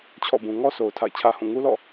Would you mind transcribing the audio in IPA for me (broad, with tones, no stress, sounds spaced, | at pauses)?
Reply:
t͡ɕʰ ɔ̰˦˨ b ũ˨ ŋ ɔ˦ s o˨ ʊ̯ tʰ a̰˦˨ ɪ̯ t͡ɕʰ ä˦ h ũ˦˨ ŋ u˦ l ɔ̰˦˨